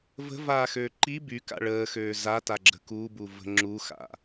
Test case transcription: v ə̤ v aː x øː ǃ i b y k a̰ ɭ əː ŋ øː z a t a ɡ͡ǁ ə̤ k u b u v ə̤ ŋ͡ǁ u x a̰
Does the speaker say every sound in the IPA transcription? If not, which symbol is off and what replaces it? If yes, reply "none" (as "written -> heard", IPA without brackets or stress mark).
ŋ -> x